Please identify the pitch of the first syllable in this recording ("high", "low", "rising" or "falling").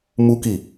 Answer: high